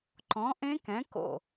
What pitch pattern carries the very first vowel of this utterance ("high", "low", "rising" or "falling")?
rising